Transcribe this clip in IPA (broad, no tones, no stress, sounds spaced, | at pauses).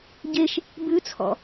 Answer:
ɟ e ʃ | b ʉ t͡sʰ ɔ̰